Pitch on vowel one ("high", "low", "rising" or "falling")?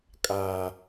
low